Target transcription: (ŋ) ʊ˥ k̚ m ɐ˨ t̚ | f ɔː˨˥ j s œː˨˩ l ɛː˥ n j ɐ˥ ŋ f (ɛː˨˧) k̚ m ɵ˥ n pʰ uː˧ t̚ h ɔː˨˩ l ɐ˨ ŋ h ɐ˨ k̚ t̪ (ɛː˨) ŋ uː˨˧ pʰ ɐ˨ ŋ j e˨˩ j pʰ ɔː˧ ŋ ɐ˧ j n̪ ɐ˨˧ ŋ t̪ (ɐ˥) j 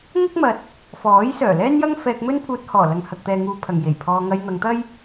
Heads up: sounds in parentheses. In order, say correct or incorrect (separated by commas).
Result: correct, incorrect, correct, correct